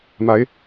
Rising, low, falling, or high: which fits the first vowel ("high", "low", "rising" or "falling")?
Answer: rising